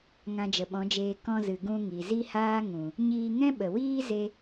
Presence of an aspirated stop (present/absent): absent